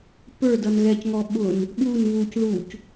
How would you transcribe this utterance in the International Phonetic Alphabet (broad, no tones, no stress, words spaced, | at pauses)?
pə˞ dʌnɣɛcŋɔ ɓʊn | ɓun βuc ðuc